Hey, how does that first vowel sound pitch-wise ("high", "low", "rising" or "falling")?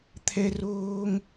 high